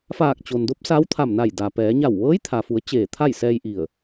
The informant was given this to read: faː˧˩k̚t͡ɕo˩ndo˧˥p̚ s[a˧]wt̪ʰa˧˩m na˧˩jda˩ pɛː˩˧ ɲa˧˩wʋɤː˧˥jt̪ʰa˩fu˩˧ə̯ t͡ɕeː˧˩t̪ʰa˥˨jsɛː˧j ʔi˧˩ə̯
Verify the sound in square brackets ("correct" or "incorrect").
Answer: incorrect